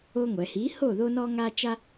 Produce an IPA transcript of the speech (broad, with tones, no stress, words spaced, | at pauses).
o˦ŋʷɛ˩˧ hi˩˥ ho˥˩ðo˦nɔ˦ŋa˦ t͡ʃa˦